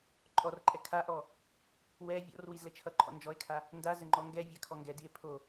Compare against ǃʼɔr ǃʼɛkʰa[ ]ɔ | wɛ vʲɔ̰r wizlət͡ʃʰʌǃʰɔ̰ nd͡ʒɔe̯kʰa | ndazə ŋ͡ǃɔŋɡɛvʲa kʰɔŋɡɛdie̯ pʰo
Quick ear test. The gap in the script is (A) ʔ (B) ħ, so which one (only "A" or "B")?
A